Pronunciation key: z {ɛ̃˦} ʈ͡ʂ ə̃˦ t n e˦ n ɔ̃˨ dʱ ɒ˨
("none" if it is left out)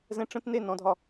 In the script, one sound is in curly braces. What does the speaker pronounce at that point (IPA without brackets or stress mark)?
ɛ̃˦